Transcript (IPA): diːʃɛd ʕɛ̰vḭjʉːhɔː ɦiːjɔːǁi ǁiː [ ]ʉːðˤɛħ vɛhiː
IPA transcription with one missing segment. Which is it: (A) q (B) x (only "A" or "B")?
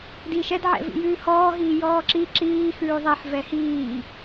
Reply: B